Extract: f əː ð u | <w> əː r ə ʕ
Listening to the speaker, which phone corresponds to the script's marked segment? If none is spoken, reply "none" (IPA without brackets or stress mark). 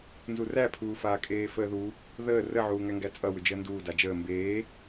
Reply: ð